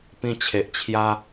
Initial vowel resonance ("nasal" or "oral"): nasal